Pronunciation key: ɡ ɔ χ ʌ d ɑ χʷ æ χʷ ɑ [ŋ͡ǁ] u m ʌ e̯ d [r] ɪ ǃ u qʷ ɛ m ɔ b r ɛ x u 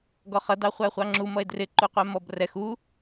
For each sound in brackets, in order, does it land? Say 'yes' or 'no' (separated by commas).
yes, yes